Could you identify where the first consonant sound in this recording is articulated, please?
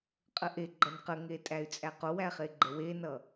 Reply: uvular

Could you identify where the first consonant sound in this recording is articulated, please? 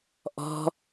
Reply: glottal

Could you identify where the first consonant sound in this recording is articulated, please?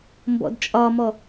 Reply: labial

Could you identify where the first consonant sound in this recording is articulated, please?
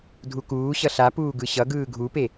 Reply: alveolar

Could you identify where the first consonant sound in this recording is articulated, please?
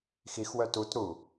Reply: velar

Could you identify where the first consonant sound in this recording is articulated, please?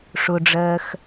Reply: retroflex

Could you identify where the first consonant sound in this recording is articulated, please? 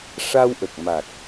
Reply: retroflex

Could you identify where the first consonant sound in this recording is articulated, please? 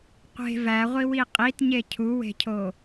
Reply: uvular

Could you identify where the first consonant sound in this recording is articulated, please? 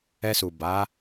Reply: alveolar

